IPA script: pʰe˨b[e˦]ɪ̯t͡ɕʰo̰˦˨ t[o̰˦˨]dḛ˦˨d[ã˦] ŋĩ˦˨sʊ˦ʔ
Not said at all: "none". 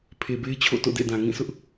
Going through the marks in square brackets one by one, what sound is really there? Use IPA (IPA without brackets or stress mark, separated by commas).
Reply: e˦, o̰˦˨, ã˨